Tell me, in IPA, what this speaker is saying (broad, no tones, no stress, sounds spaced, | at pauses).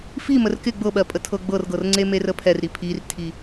f i m ə r k ɪ ɡ͡b ɤ ɓ ɜ pʼ ə tʰ ɤ ɡ͡b ɤ r ɡ ɤ r ŋ͡ǀ e m e r ə pʰ ɛ r ɾ i pʰ i r tʰ i